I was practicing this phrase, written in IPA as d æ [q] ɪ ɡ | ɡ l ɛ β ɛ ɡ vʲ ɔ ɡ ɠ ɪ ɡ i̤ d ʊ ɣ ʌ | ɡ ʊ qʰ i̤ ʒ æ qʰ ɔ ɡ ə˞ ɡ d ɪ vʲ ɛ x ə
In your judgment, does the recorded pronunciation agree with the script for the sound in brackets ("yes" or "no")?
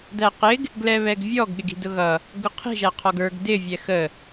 yes